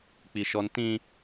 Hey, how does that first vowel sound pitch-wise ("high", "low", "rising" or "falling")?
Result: high